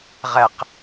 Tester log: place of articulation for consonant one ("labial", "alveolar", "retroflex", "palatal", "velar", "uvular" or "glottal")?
uvular